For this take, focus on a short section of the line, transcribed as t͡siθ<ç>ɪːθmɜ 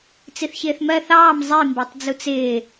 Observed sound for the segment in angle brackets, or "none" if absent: ç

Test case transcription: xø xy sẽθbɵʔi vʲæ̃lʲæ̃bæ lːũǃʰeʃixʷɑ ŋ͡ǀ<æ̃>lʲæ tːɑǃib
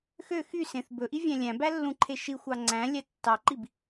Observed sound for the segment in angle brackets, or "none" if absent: æ̃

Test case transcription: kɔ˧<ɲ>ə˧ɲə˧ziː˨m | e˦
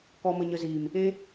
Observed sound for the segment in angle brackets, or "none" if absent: m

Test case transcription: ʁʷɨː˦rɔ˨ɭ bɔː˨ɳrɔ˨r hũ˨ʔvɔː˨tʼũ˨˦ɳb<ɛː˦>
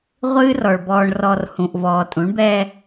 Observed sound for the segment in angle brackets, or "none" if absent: ɛː˦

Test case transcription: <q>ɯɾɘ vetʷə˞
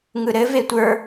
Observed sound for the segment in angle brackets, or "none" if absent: ŋ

